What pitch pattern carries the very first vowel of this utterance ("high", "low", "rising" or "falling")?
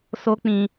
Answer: high